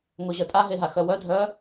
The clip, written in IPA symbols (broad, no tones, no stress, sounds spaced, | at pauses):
ŋ o ʑ œ tʼ a ɦ e ɦ a x œ w œ dʱ œ